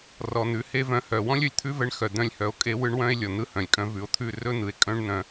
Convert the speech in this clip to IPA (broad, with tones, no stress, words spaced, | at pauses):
rɔ˨n̪ʉ˨ he˦vœ̃˧ hœ˨ wɔ̃˦lʲɵ˧lʲt̪ʰʉ˦vɛ˧ɳ xœ˨ d̪œ̃˦lʲhœ˧o̯kʼe˦ wɯ˦ɳwœ̃˦e̯lʲɔ˨ n̪ɯ˧hœ̃˨lʲkʼœ̃˧ vʉ˨o̯t̪ʰʉ˦˨ rɵ˦n̪ɯ˨e̯ kʼœ̃˦ɳn̪œ̃˧